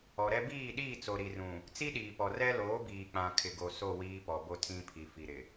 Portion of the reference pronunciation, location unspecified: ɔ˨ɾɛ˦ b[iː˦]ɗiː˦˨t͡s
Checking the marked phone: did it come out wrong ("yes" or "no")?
yes